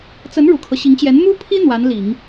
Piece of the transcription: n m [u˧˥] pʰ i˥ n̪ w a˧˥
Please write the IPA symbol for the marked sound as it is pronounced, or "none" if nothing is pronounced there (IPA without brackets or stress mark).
u˥